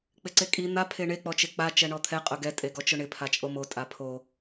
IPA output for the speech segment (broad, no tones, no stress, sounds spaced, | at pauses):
k͡p ɪ ǀ e kʼ i n̪ a pʰ e ɳ e k͡p ɔ t͡ʃ e k͡p a t͡ʃ ɛ ɳ ɔ t̪ʰ ɛ qʼ ʊ ɡ ɛ tʼ e ɡ ɔ t͡ʃ ʊ ɳ ɪ pʰ a t͡ʃʼ o m o tʼ a pʰ o